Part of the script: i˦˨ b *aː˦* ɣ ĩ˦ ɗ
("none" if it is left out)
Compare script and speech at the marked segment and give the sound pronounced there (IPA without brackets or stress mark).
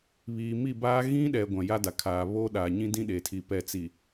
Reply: aː˦